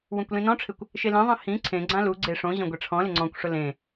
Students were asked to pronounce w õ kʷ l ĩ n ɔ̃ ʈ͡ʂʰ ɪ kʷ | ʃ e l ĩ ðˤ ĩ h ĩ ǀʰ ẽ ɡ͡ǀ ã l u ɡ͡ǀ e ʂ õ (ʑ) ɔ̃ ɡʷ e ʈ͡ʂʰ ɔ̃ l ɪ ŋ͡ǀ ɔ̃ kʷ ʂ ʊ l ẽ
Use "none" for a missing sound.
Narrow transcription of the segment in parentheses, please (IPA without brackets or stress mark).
ʑ